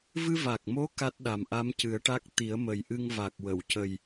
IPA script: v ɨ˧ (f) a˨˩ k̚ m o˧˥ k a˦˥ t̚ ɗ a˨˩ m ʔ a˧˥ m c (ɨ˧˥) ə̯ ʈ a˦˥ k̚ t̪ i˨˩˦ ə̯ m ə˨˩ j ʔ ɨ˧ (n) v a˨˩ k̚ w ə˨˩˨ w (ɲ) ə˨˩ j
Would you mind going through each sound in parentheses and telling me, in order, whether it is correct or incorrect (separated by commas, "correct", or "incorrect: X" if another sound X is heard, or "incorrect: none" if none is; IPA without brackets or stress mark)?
incorrect: v, incorrect: ɨ˨˩˦, incorrect: ŋ, incorrect: c